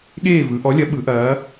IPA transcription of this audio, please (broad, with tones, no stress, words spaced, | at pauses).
ɠeː˥˨vɯ˩˧ ʔɔ˨˥lʲɐ˨˥ ɓɯ˩˧ʔɐː˩˧